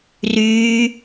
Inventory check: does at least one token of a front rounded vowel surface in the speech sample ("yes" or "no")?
yes